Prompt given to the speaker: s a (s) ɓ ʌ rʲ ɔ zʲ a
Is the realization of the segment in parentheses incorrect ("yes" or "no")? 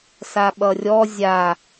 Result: yes